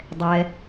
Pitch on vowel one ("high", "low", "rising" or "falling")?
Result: low